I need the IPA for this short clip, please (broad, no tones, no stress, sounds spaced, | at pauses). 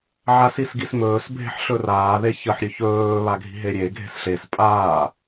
ʕ a s i s ɡ i s m ɵː s bʱ e̤ ħ ɬ ɵ r aː ð e ç ə ħ ɾʲ ɵ ç ɵː β a ɡʱ i̤ ɦ e ɾʲ e ɡʱ e̤ s ɬ e s pʼ aː